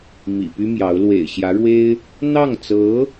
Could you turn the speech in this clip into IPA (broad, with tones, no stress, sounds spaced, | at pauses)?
m ḭ˨˩ p y˥ m j ɑ˧˥ ʊ̯ l w ḛ˨˩ ɪ̯ ɕ j ä˧˥ ɻ w e˥ ɪ̯ | n̪ ɑ˥˩ ŋ t͡s ɤ˧˥